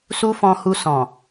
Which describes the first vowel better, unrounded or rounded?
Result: rounded